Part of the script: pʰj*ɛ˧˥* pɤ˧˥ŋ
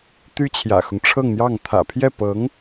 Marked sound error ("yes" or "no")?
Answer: yes